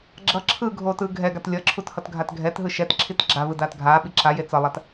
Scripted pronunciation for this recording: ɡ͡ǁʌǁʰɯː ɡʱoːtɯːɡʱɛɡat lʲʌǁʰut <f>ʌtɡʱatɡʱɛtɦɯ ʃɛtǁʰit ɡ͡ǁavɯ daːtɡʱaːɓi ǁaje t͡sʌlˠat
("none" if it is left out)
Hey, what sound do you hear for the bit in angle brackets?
h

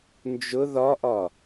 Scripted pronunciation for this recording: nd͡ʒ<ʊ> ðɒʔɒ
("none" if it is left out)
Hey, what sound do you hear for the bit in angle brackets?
ʊ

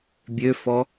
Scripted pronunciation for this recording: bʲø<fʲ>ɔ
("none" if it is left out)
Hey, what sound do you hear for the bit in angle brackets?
f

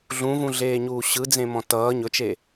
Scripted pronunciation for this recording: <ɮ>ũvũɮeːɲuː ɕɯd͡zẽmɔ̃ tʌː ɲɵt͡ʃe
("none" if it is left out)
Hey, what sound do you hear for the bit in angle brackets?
ɮ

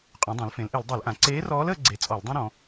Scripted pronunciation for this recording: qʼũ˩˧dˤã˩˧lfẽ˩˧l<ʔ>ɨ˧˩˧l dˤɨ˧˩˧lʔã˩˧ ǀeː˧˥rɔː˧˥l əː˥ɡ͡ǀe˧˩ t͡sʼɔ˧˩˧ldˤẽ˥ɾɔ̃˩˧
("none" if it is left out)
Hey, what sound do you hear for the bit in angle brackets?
ʔ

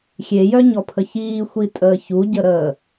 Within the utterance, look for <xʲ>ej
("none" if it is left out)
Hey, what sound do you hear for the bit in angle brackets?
xʲ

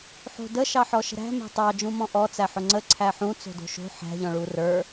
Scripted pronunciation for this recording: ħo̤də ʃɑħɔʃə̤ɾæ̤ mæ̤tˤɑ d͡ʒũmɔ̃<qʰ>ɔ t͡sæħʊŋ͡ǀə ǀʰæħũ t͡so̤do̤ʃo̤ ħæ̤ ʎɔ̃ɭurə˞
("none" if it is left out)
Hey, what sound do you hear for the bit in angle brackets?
ʔ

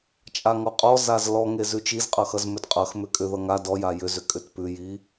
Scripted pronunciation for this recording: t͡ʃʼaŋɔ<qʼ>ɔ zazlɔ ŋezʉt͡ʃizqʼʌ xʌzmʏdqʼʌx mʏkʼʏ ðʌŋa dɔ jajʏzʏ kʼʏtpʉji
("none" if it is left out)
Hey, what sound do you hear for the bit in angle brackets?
qʼ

